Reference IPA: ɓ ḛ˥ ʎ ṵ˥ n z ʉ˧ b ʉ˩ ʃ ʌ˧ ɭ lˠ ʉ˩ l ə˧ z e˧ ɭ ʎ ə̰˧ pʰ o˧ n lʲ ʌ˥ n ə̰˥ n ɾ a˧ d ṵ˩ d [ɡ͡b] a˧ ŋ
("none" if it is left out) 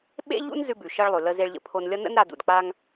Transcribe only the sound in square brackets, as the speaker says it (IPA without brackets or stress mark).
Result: k͡p